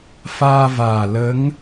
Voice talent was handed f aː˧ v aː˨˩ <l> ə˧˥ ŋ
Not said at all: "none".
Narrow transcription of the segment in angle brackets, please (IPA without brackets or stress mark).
l